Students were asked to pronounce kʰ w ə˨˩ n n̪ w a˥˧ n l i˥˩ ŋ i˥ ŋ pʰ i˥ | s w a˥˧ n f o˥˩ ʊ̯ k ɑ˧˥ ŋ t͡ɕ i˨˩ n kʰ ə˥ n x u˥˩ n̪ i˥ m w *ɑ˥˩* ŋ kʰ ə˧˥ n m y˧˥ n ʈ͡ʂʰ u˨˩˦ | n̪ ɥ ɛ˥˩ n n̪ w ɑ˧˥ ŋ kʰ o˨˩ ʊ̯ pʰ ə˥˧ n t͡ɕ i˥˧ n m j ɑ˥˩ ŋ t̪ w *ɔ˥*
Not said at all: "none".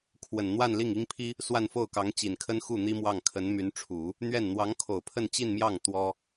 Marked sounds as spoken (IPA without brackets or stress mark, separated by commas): ɑ˥˩, ɔ˥